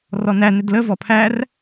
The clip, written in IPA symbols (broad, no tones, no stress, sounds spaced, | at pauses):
r ɔ n æ n ɪ d l ə v ɔ pʰ æ r